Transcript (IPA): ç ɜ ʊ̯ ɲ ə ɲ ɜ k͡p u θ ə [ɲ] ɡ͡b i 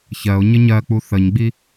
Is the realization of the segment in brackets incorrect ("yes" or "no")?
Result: no